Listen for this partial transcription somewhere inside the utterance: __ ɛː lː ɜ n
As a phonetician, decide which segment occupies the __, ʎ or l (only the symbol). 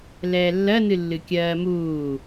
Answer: l